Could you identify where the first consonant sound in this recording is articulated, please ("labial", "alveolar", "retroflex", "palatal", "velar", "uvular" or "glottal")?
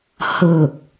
glottal